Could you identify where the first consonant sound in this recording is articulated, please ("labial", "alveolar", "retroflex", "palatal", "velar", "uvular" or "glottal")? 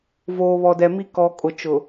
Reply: labial